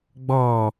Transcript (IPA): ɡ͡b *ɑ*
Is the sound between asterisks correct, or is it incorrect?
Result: incorrect